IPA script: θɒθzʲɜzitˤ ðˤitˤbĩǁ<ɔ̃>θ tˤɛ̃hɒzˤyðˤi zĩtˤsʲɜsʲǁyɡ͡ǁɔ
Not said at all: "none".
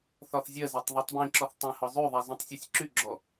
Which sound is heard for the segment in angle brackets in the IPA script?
ɔ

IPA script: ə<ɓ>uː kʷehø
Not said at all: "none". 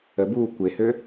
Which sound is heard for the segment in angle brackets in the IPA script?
b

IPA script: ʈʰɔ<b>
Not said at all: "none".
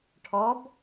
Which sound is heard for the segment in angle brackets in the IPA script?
b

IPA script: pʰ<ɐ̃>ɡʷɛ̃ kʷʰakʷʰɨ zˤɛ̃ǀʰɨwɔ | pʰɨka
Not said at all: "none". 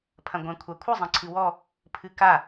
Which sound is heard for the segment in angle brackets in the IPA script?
ɐ̃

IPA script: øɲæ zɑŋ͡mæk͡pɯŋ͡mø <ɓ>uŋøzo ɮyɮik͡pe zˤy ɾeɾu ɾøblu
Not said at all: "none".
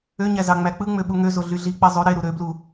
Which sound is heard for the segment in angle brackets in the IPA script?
ɓ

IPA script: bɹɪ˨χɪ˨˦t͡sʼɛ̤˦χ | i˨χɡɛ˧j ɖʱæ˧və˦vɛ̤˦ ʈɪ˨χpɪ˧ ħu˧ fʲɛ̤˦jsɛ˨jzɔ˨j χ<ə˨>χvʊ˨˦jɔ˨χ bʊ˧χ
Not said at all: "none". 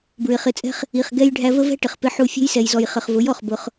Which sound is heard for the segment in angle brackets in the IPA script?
ə˨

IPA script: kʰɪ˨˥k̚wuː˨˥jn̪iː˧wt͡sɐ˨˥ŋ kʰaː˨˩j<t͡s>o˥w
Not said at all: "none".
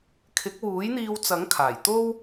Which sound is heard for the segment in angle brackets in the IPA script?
t̪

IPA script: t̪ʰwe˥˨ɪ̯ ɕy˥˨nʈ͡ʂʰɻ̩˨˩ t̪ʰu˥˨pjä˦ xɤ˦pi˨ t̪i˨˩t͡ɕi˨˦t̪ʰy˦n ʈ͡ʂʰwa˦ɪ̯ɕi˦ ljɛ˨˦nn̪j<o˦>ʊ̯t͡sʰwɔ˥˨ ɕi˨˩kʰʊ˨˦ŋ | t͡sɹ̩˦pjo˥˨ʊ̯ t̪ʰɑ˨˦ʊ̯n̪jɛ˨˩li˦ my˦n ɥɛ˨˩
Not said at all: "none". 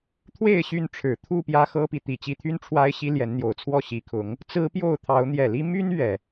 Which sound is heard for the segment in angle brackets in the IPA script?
o˨˩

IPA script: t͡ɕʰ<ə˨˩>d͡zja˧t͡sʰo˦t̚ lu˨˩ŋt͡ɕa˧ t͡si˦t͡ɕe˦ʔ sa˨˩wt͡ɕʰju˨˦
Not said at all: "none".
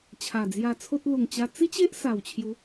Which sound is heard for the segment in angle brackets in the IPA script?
a˨˩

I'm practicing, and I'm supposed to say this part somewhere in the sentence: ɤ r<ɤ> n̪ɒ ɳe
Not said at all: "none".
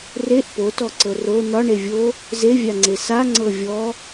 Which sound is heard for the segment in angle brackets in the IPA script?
o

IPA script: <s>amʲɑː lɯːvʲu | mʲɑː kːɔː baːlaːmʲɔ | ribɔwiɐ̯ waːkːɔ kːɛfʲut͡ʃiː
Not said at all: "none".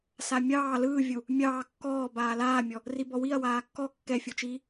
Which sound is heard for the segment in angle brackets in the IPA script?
s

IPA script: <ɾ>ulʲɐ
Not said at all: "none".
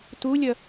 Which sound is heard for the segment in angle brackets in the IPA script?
t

